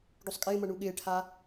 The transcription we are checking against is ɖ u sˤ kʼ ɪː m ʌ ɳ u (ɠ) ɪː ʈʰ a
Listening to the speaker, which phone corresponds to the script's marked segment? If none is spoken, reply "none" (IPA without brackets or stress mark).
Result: ɠ